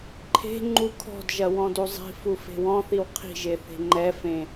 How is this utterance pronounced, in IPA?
ǃʰ e̤ ŋ͡ǃ u kʰ ɔ̤ d ʒ ɐ w ɔ̃ d u zˤ i̤ f u f e̤ w ɔ̃ θ i w qʰ i̤ ʒ e θ e̤ ŋ͡ǃ ɛ f ẽ

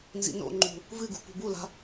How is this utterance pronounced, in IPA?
n z ḭ n o̰ ŋ͡ǃ ṳ | v ɨ ɡ ṳ p ṳ b u l a̤

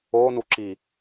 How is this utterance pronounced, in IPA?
o n u ǁ i

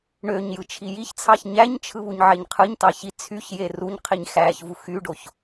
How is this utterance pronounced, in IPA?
ɳ ø ɲ j ɯ t͡ʃʰ i j i ç t͡sʰ ɑ ç ɲ æ ɲ t͡ʃʰ ɯ β u ɲ ʕ e ɲ qʰ ɯ ɲ t ɑ ç i t͡sʰ y ç j e r u ɲ qʰ i ɲ x æ ç v u x y ɖ o ç

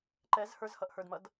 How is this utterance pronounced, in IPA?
ǃ ɛ z h ə˞ z h ʌ ʔ h ə˞ d m ʌ d

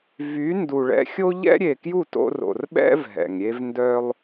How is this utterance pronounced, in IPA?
v y˨˦ n d u˨ ɭ ɛ̰˧ xʲ o˦ ʎ ɛ̰˦ ɾʲ e˨ k j u˦˨ t o̰˧ r o̰˨ r ɓ ɛ̰˦ v ɦ ɛ̰˨ ŋ ɾʲ e˦ v n d œ˧ lˠ

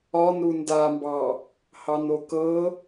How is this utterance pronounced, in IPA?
ɒ n ɾ u n d a m b ɑ | h ɑ n o k ɤ

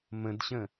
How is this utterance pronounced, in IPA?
m ə̃ d ɕ ə̃

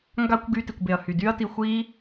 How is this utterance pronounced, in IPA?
ŋ ɡ a˦ kʷ ɡ y˧ t i˨ kʷ b e˨ ɐ̯ h y˨ d y˦ ɐ̯ t i˧ xʷ i˦

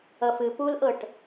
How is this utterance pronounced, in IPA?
ʌ f ɨ p u l ʔ ɤ ʈ

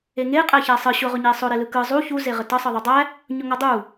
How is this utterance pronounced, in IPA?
e ŋ e qʼ æ ç æ sˤ ɯ ɕ ʊ ʁ ʊ ɲ e sˤ ʊ ɾ e l ɯ k ɯ zˤ u ç u z e ʁ ə t ʌ sˤ ɯ ðˤ u dˤ æ | ɲ ʊ ŋ ʌ dˤ u

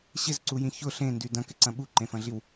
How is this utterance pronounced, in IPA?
ɕ ɪ z ǀ u j ĩ ç ʊ ɬ ẽ n d y d ɐ̃ k ɪ ǀ ɐ̃ ɓ u ǃ ẽ f ɐ̃ ɮ i w

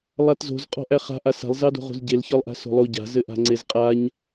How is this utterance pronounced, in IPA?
lˠ a t z o̤ z qʼ ɔ̤ ʔ æ χ a̤ ʔ a s a̤ lˠ z ɑ d o̤ ʁ o̤ z ɟ e l ç ɒ lˠ ʔ a̤ s o̤ lˠ o ɟ a̤ z ɘ ʔ a̤ ŋ͡ǀ e z qʼ a ɲ

